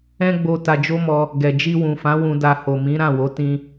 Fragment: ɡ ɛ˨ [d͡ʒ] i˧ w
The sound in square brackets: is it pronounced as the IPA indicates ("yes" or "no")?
yes